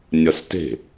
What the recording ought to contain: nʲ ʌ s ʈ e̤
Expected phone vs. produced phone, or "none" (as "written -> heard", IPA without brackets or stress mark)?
ʈ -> t